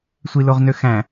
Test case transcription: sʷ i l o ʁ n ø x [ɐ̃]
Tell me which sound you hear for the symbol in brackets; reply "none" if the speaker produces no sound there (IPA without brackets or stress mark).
æ̃